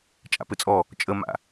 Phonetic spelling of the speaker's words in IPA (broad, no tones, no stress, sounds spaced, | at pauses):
t͡ʃʼ a̰ p ɘ t͡sʼ ɔ | t͡ʃʼ ə m a̰